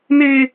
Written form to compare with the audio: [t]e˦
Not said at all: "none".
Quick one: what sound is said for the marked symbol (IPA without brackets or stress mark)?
n